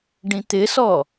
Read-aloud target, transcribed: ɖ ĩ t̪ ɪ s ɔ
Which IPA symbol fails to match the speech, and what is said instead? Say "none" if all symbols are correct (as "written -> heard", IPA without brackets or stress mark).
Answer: none